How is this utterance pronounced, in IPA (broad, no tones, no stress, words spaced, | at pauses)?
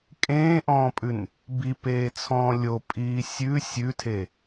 kʼẽːʔɔ̃ːpʼʉn | bipeːt͡sʰɔ̃ː lʲopʼiː sʲʉ sʲʉtʰe